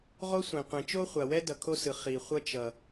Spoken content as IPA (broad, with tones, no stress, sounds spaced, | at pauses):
ʁ o˥ sʷ ẽ˩ qʷ ẽ˩ t͡ʃ o˥ χʷ a˩ w ɛ˥ d ʌ˩ kʰ o˥ s ɯ˩ χ i˩ χʷ ʌ˥ t͡ʃ ʌ˩